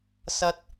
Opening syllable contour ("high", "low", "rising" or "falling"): high